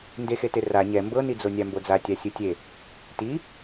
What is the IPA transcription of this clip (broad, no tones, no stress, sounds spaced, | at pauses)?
n d e x e t e r a ɲ ɛ m b ɤ n i d͡z o nʲ a m b o d͡z a tʲ a sʲ ɯ tʲ e | t i